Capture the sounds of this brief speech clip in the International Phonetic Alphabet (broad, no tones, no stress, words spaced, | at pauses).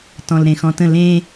tɔ̃lɾẽxɔ̃tə̃ lẽ